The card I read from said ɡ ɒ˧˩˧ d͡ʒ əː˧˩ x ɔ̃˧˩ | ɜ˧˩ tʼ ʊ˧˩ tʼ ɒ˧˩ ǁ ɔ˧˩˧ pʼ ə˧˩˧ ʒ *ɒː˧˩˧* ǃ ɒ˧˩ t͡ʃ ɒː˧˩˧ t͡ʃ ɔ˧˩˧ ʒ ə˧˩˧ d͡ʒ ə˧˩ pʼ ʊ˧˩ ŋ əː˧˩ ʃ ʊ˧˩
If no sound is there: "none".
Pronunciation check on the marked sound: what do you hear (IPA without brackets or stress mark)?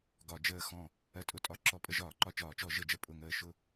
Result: ɒː˧˩˧